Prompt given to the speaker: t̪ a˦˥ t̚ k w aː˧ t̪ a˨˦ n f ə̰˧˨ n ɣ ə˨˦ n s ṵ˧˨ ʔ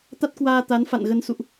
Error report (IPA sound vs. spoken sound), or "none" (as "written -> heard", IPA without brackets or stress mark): ə̰˧˨ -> a̰˧˨